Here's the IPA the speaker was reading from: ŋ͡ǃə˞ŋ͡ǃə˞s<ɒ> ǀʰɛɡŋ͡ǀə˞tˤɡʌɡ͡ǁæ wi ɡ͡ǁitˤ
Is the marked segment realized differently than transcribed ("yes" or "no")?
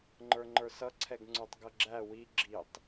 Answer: yes